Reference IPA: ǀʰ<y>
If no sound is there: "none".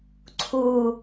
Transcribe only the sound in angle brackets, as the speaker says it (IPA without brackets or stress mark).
u